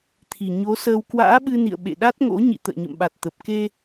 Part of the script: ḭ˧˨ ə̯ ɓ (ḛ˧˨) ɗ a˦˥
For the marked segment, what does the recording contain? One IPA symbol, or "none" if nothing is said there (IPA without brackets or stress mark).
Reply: ḛ˧˨